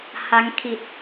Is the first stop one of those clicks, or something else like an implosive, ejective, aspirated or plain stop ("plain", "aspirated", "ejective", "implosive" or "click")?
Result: aspirated